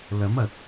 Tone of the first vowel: rising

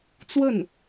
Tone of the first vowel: falling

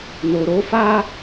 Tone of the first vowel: low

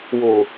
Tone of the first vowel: low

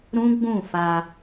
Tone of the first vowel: high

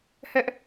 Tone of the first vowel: high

